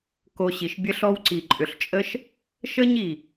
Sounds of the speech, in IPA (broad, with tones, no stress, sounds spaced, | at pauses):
k o˧ ɕ i˨ ʃ bʲ ə˦ ɬ ɔ˦ w ǀ i˨ ǃʼ ʏ˨ ɬ t͡ʃʼ ə˦ ʃ | ʃ ə˦ ɲ i˨